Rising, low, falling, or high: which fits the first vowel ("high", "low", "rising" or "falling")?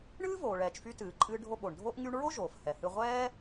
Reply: high